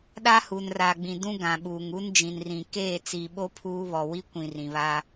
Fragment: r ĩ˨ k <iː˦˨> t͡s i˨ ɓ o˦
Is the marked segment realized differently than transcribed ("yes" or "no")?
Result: yes